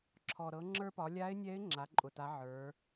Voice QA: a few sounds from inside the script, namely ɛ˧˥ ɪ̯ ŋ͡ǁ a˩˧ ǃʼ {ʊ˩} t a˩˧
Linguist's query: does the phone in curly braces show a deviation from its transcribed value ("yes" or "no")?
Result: no